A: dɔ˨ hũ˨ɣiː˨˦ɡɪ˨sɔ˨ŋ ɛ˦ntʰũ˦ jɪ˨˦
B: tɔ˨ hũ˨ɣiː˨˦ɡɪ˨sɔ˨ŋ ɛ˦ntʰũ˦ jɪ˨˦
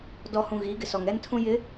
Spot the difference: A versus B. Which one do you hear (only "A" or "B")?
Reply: A